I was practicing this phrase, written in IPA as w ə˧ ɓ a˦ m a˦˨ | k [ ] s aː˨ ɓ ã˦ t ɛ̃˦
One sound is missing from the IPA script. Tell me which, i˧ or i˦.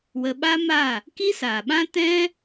i˦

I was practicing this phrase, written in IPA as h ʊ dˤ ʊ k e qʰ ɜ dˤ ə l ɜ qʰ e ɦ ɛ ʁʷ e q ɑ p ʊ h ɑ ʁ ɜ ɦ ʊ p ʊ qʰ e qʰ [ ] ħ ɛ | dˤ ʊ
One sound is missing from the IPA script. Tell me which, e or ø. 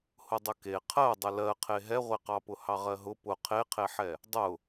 e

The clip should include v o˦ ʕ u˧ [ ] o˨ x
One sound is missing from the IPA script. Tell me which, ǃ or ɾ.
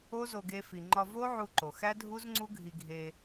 ǃ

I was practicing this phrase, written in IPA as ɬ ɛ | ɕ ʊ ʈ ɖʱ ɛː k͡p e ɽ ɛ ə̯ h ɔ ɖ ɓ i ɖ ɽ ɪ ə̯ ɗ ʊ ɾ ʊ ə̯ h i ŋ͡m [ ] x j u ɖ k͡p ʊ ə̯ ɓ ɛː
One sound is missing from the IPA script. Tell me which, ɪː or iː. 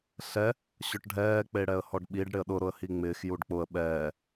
ɪː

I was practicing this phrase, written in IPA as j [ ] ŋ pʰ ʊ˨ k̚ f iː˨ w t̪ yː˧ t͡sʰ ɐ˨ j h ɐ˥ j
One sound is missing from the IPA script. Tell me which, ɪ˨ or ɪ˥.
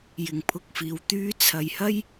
ɪ˨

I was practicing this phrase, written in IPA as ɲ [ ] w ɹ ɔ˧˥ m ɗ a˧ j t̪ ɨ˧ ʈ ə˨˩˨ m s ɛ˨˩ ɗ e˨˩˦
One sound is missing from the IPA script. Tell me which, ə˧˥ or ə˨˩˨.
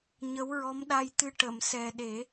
ə˧˥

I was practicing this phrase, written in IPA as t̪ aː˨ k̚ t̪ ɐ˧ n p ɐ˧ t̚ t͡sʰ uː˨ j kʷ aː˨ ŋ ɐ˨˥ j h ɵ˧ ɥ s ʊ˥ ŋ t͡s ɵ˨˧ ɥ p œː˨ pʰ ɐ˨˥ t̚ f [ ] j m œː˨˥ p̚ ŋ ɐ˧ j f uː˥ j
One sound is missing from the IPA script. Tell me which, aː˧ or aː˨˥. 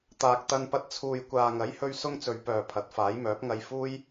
aː˨˥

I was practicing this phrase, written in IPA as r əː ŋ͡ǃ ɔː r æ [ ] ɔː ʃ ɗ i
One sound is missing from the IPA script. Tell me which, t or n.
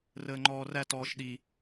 t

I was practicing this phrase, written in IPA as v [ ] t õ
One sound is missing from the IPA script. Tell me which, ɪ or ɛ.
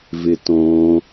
ɪ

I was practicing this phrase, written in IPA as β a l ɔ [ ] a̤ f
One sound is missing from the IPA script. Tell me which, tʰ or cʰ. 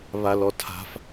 tʰ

